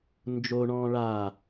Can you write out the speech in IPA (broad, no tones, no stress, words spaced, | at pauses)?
nd͡ʒoɳɔ̃ː ɭa